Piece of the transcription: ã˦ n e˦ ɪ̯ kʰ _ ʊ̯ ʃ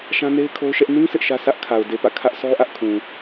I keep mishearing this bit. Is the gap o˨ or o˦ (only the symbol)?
o˦